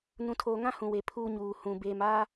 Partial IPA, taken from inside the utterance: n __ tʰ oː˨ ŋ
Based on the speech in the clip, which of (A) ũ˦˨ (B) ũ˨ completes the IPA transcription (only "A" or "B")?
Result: B